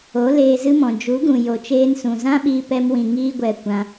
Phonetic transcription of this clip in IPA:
o˨˦ l eː˧ z ɨ˦ m ɔ̃˨ d͡ʒ u˨˦ ɡ ũ˨ j o˨ t͡ʃ eː˧ n s ũ˨ z ã˦ ɓ iː˧ p ɛ˧ m w ĩ˨ ŋ iː˦ ɡʷ ɛ˧ kʷ ã˧

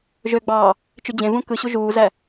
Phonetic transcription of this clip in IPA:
ʒ ø ɡ͡b ɑː | t͡ʃ y d͡ʑ ẽ v ũ k ɯ ɕ u ʒ uː z æ

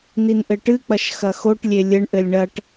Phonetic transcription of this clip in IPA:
n i n ʔ ɘ ʈ ɨ k͡p ɐ ʃ x ɐ x o ʈ lʲ e lʲ ɘ ɳ ʔ ɘ lʲ ɳ ɐ ʈ

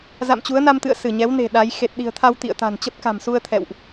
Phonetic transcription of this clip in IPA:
z a̰˧˨ m t͡ɕ u˨˦ ə̯ n a˧ m t̪ ɨ̰˧˨ ə̯ s ɨ˧˩ ɲ ɛ˨˦ w n e̤˨˩ ɗ a˨˦ j x e˨˩ t̚ ɗ i̤˨˩ ə̯ t̪ʰ a˧ w t̪ ḭ˧˨ ə̯ t̪ a̤˨˩ n t͡ɕ ə˦˥ p̚ k a̤˨˩ m s u˧ ə̯ t̪ʰ ɛ̰˧˨ w ʔ

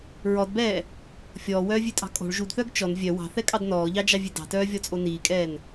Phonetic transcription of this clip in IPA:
ɹ ɔ d b ɛː | fʲ ɔː w œː vʲ ʉ tʼ ɑ̤ kʼ o̤ ɭ ʒ u d θ œː ɡ t͡ʃ ɔ n vʲ œ w ɑ̤ θ ɛ kʼ ɑ d n ɔː ʎ ɑ d͡ʒ ɑ vʲ ʉ d ɑ̤ t œː vʲ ɔ t͡sʼ o n iː kʼ ɛː n

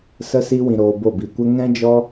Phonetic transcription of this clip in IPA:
s ə˦ s i˦ w ĩ˧ ɾ oː˧ b o˦˨ b i˧ kʷ ə˦ ŋ ɛ̃˦ d͡ʒ ɔ˦

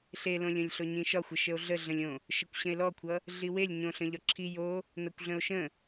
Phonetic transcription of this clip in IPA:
ɬ e l õ lʲ õ lʲ ɬ o ɲ ĩ ʃ ɒ xʷ ə ʃ ə o̯ ɮ ə ɮ ə̃ lʲ õ | ʃ ə kʷ ɕ ə̃ e̯ l ɔ kʷʰ ʌ | ɮ i w e lʲ ɲ õ ɬ ə̃ ʎ ɒ ǁʰ i j o | n ʌ kʷ ɮ ə̃ o̯ ʃ ə̃

